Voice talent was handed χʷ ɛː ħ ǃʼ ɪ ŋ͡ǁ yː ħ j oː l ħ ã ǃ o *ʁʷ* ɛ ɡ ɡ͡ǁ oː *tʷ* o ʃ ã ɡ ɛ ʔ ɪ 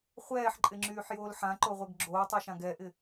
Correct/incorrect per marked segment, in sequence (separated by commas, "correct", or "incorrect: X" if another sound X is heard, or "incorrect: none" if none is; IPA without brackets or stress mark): correct, incorrect: tˤ